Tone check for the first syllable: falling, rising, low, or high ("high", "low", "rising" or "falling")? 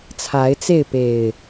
rising